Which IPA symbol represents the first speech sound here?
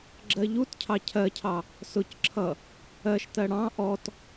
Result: ɡ͡ǁ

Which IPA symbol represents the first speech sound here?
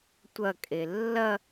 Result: tʷ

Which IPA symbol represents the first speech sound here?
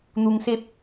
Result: n̪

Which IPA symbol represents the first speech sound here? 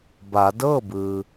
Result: b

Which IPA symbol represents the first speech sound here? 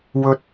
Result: w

